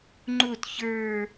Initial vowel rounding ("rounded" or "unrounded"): rounded